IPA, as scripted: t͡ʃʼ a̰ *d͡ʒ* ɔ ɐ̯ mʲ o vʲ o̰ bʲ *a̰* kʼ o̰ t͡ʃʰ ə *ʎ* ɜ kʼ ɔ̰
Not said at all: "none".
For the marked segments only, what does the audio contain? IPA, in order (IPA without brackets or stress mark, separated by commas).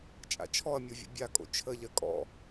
t͡ʃʰ, a, ʎ